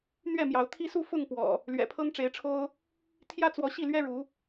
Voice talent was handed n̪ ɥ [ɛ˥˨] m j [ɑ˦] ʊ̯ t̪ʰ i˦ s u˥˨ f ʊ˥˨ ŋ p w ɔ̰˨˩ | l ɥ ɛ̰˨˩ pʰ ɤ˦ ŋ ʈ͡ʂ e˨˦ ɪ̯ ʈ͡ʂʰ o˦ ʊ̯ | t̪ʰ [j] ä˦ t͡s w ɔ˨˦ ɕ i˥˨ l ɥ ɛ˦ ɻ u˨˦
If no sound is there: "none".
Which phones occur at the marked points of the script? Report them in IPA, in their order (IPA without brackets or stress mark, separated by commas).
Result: ɛ˥˨, ɑ˨˦, j